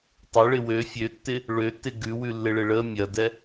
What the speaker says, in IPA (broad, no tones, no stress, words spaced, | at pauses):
tˤəɭɪ wø fʲøtːɪ | ɭøtːɪ ɡʉwʉlːɪɭɪ ɭə mʲɐdɛ